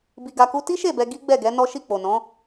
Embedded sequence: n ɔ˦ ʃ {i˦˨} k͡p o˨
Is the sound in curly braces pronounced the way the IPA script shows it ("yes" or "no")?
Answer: yes